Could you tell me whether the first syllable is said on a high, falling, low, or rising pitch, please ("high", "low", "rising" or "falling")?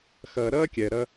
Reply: low